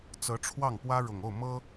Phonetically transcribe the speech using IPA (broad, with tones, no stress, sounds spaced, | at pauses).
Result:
t͡s ɤ˧˥ ʈ͡ʂʰ w ɑ˥˩ ŋ p w ä˥ ɻ ʊ˨˩ ŋ o˥˩ ʊ̯ m ɤ˥